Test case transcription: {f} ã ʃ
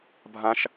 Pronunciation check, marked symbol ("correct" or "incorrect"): incorrect